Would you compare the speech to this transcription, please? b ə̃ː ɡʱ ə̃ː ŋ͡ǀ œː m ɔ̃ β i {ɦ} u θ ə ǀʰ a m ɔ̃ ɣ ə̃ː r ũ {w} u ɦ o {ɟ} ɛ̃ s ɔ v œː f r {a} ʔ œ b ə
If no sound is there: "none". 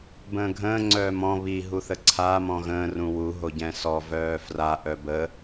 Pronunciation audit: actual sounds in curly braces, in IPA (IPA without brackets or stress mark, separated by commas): ɦ, w, ɟ, a